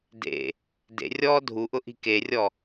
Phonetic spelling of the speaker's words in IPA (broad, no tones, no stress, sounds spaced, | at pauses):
d ḛ | d ḛ rʲ ɔː dʱ u ʔ ʊ ʔ i̤ k e rʲ ɔ